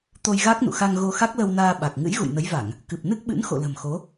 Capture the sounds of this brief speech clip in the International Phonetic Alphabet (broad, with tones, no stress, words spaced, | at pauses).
t̪o˧jɣa˦˥k̚nṵ˧˨xa˧ŋ ɣo˧xa˦˥k̚lə˧wnaː˧ ɓa˨˩k̚ ŋɨ̰˧˥jɣṵ˧˨jnə˨˦jva˧˩˨ŋ | kɨ˨˩p̚ nɨ˦˥k̚ɓɨ̰˧˥n xo̰˧˨lə̤˨˩mxo˨˦